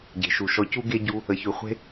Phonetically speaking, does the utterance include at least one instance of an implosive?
no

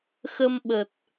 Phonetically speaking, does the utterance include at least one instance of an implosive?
yes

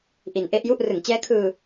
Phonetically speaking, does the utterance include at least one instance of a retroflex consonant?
no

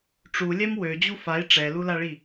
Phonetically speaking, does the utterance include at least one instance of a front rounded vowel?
yes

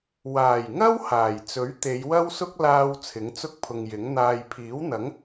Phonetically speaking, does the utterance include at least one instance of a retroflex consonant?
no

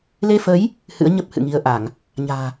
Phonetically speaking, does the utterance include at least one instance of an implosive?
no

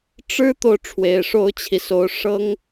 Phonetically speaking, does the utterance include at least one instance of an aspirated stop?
yes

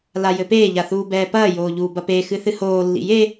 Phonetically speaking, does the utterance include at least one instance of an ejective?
no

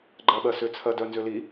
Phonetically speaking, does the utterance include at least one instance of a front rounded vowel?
yes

